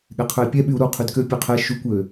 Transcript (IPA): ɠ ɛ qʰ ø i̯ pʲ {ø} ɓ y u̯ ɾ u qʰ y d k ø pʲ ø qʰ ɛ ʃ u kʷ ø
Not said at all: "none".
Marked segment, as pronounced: ɛ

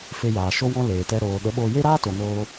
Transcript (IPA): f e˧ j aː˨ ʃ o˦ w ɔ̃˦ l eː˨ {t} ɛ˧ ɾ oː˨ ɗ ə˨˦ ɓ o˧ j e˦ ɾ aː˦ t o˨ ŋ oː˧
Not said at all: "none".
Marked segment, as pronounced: t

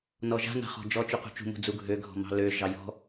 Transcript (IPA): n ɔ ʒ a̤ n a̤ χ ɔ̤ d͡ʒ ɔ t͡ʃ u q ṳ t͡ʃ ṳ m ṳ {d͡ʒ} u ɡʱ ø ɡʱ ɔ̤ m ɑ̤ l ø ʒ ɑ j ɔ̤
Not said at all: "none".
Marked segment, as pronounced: d͡z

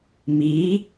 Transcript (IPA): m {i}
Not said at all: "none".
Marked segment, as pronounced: i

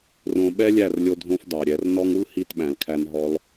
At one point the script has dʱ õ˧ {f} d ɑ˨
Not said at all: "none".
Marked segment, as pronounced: f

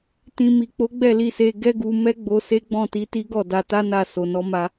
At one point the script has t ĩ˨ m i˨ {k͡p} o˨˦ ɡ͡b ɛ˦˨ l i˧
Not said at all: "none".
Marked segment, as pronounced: k͡p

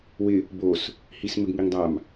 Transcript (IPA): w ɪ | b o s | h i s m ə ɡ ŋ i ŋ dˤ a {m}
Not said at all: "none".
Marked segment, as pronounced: m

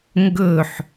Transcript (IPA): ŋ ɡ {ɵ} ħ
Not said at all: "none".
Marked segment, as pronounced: ɵ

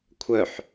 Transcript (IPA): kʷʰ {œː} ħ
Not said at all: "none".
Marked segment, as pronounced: œ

